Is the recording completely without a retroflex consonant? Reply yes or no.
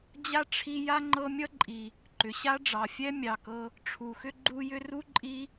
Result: no